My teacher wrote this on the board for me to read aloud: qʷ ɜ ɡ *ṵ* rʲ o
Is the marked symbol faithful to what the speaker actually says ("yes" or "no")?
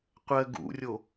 yes